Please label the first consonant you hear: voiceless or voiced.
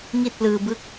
voiced